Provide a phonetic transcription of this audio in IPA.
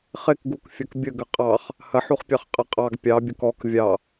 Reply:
χ ɪ k ɡ u k fʲ ɐ k bʲ ə ɡ ə qʼ ɑ χ | h ɐ ħ u χ pʲ ɑ χ qʼ ɐ qʼ ɑ ɡ pʲ ɑ bʲ ɐ k ɔ k vʲ ɑ

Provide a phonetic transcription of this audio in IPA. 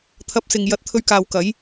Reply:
t̪ʰ ɐ˧ p̚ s ɪ˨ ŋ j ɐ˧ t̚ t̪ʰ ɵ˧ ɥ k aː˨ w k ɐ˨˥ j

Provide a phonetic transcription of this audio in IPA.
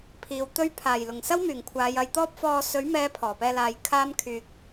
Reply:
pʰ iː˨ w t̪ ɵ˥ ɥ pʰ aː˨˩ j l ʊ˨˩ ŋ s ɐ˥ w m yː˨˩ ŋ kʷʰ aː˨˧ j ɐ˨ j t̪ ɔː˥ p̚ f ɔː˧ s ɵ˨˥ ɥ m ɛː˨˧ pʰ ɔː˨˩ p ɛː˧ l aː˨ j kʰ aː˥ m kʰ yː˧ k̚

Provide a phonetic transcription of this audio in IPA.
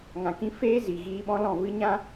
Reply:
ŋ ã˨ k ĩ˧ f eː˦ z i˨ ɣ iː˧ ɓ ɔ̃˦ l ɔ̃˦˨ v ɨ˦ ɲ ã˦

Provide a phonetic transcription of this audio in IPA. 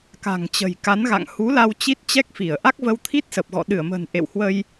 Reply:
k a̤˨˩ ŋ t͡ɕ ə̤˨˩ j k a˨˦ n ɣ a̰˧˨ ŋ h u˨˦ l a˧ w t͡ɕ i˦˥ t̚ t͡ɕ ɛ˦˥ k̚ f i˧˩ ə̯ ʔ a˦˥ k̚ v ə˧ w t̪ʰ i˦˥ t̚ s ə˨˩ p̚ ɣ ɔ̰˧˨ ɗ ɨ˧˩ ə̯ m ə̤ː˨˩ n ʔ ḛ˧˨ w h w ə˧ j

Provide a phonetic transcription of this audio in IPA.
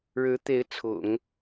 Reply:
ɻ ɻ̩˧˥ t̪ e˧˥ ɪ̯ t͡sʰ ʊ̰˨˩˦ ŋ

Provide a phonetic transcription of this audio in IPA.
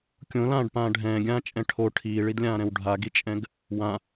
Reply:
kʲ õ l ãː ɖ p ãː ɖʱ ɛ̃ː ɡʲ ãː t͡ʃʼ ɛ̃ ʈʰ o ʈʰ iː ɭ i d lʲ ãː ɾ ɛ̃ w ɖʱ a ɡ i t͡ʃʼ ɛ̃ ɡ | w ã

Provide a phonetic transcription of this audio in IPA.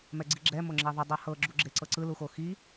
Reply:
m ɛ ɡ͡ǀ i ɡ͡ǁ ɛ m o ŋ͡ǁ ɛ ðˤ ɯ dˤ a h ɤ ɡ͡ǁ u ɡ͡ǁ e ǀ ɤ ǀ ɯ l u x o x i

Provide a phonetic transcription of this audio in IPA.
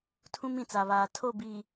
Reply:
tʰ ũ˦ m ĩ˨ t͡s a˨ β aː˨ tʰ o˦˨ b iː˨

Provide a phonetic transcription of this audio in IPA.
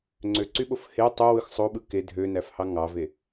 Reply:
ŋ͡ǀ ø ǀ y ɓ o f h e tˤ ø w ɯ x sˤ o ɓ ɯ k e dʱ ø n æ f h ɑ ŋ ɑ v e

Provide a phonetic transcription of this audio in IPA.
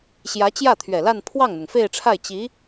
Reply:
ɕ j ä˧˥ t͡ɕ j ä˥˩ t̪ʰ ɥ ɛ˨˩ l a˥˧ n pʰ w ɑ˥˩ ŋ n̪ ʊ˩ ŋ f e˥˧ ɪ̯ ʈ͡ʂʰ a˥˩ ɪ̯ t͡ɕ i˧˥

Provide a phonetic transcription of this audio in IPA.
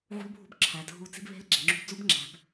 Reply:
ʕ ṳ˦˥ l bʱ ṳ˦˥ b ǁʰ æ˩˧ dʱ u˧ t͡s i̤˦˥ b β e̤˦˥ l ɡ͡ǁ e˩˧ ŋ͡ǁ ṳ˧ b d͡z u˦˥ b ŋ͡ǁ æ̤˩˧ b

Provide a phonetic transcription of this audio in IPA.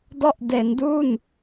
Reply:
d ɔ˦˥ ʔ d e˩˦ n d u˥˩ n

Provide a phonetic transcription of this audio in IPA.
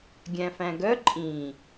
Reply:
ɡʲ æ̃ f æ̃ ɡ œ ǃʼ ĩ

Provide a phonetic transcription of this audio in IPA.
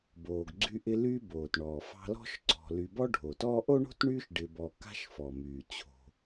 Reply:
b oː˨ ɡ ɡ͡ǀ y˦ ʔ ɪ˦ l y˦ b oː˩ t ɳ ɔː˩ f ɑ̤˦ l ɔ̤˥ ʃ ǀ ɔ̤˨ l y˨ b ɔ˦ ɖʱ o˩ t ɔː˦ ʔ o˥ ɳ o̤˥ t ɳ yː˦ ʃ ɖ ɪ˨ b ɔ˨ k a̤˦ ʃ f ɔ˩ m yː˩ t͡ɕʰ o̤˩

